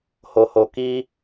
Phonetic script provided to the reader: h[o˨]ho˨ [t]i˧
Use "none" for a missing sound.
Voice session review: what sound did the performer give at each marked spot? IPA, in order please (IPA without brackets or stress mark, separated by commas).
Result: o˨, k